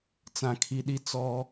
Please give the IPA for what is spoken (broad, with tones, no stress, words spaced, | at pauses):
t͡sã˨kʰi˨ɗi˦ t͡sɔ˦